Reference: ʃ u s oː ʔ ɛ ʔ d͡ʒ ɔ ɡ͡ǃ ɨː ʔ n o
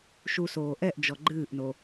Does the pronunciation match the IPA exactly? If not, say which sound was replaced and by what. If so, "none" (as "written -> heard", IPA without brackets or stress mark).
none